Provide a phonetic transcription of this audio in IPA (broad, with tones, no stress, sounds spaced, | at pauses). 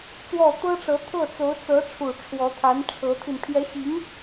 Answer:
t͡s w ɔ˥˩ t̪ ɤ˥ ʈ͡ʂ ɤ˧˥ t̪ʰ ɤ˥˩ t͡s o˧˥ ʊ̯ t͡s ɤ˧˥ ʈ͡ʂʰ u˨˩ ʈ͡ʂʰ w ɔ˧˥ t̪ʰ a˧˥ n ʈ͡ʂʰ ɤ˧˥ t̪ʰ i˧ n pʰ j ɛ˧˥ ɕ i˧˥ ŋ